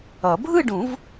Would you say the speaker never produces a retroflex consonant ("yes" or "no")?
no